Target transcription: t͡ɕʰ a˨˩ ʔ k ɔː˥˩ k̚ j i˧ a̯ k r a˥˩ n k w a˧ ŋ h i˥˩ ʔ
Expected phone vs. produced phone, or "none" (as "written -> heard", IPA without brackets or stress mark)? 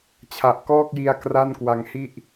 none